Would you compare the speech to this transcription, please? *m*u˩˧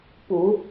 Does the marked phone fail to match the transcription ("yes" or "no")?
yes